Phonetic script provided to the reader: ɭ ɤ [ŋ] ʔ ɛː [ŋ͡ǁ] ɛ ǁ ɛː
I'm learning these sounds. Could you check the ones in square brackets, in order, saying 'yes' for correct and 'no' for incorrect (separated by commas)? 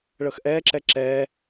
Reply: no, no